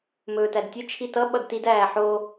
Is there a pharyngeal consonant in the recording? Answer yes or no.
yes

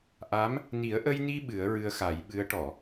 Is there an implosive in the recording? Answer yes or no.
yes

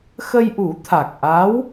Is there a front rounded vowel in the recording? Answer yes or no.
no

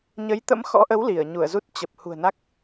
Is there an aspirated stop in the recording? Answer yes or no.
no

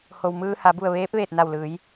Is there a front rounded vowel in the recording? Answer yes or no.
no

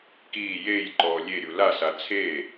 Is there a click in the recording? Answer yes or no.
yes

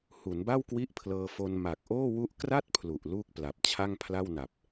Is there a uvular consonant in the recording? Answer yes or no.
no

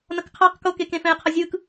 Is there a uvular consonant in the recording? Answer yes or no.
yes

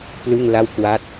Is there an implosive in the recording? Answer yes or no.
no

